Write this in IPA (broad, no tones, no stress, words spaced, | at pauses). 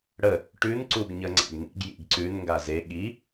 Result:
ɽə | ʈʉn ǀuɡɲəŋ͡ǀa̰ɡnḭɡ jḭɡǀʉn ŋɡaze ɠi